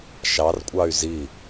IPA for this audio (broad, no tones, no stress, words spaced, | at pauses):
ʃɑrkʷʼɑy̯ zi